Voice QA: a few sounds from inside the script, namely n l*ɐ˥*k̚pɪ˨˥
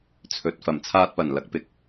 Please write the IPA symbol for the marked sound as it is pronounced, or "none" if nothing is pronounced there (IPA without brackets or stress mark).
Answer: ɐ˨˥